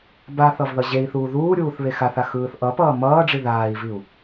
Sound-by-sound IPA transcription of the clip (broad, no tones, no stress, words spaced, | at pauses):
baθʌv ðʌʑei̯θuː ðuːɾʲuːθ βexaθa xɯːθʔʌpʌː mʌːɖ͡ʐi ðaːi̯viu̯